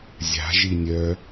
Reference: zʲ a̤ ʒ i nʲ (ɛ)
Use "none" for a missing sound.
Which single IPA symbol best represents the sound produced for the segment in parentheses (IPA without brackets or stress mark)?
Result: œ